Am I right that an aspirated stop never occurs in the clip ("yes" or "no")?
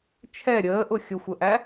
no